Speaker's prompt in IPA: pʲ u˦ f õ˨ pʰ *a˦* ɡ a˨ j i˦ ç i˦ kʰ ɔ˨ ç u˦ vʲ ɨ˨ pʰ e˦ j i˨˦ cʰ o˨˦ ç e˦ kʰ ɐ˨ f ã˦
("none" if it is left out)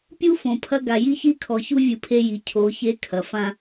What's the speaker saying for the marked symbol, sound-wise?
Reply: ɐ˦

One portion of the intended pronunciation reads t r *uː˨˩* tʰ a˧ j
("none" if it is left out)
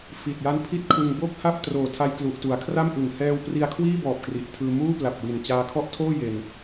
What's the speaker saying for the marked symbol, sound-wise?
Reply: oː˨˩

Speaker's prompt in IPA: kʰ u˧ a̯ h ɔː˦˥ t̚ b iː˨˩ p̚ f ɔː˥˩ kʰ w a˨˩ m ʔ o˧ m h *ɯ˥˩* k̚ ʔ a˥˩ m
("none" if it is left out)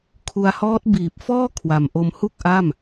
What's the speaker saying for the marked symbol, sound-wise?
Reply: u˥˩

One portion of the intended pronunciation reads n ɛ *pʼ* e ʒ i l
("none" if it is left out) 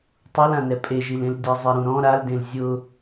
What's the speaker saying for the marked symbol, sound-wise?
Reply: pʼ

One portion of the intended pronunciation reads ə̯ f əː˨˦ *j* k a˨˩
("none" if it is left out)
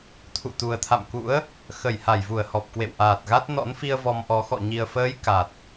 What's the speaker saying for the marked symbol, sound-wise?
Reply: j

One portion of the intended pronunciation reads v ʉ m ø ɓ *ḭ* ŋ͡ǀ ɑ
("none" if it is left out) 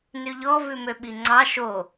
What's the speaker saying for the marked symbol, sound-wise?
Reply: i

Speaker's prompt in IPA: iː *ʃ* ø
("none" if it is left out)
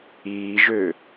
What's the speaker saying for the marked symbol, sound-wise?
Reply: ʒ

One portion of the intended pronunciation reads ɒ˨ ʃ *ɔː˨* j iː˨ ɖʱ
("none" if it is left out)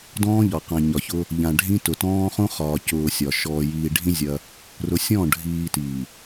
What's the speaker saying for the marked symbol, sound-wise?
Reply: ɔː˨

